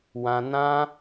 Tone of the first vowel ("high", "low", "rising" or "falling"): high